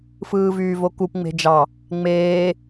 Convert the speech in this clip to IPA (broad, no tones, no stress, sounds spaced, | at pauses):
f ɯː v yː v o k u p ŋ͡m e̤ d͡ʒ ɑ | ŋ͡m eː